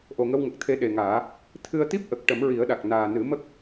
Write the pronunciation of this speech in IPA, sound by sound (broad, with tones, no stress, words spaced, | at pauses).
ʔo˨˩ŋə˧wŋə˨˩k̚ t̪ʰe˧ɗe˨˩ŋaː˨˩˦ | t̪ʰɨ˧ə̯t̪i˦˥p̚ ʔə˨˩k̚ʈə˨˩˦mɹi˨˩˦ə̯ɗa˨˩k̚ naː˨˩nɨ˨˩˦mə˦˥k̚